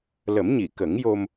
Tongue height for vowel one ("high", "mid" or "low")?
mid